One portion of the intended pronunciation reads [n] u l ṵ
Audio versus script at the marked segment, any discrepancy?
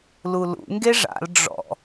yes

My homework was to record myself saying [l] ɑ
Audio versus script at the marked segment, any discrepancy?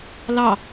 no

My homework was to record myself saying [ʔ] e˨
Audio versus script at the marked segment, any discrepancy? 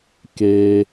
yes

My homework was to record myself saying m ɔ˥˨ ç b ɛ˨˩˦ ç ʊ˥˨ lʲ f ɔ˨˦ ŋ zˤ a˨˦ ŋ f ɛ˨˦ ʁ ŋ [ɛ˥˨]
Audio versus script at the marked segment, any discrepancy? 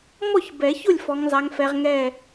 no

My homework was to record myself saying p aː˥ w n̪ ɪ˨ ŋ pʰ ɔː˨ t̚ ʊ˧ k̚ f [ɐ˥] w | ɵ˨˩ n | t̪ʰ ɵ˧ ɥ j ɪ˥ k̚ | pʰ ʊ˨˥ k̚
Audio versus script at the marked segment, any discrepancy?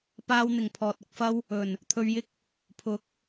no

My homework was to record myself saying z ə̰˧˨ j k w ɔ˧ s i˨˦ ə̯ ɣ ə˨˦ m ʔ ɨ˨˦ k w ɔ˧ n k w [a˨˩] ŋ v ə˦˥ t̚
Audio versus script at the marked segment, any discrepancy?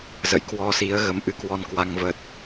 yes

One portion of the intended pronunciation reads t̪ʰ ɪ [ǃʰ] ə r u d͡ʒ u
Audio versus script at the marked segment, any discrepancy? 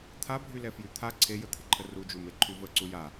no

